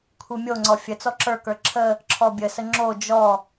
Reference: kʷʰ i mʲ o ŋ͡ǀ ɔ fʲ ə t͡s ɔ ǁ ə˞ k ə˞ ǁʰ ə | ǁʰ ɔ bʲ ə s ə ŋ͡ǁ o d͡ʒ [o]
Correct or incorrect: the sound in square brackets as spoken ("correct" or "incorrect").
incorrect